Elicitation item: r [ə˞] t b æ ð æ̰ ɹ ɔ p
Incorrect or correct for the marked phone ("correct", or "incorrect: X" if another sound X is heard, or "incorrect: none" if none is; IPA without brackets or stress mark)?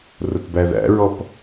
incorrect: ə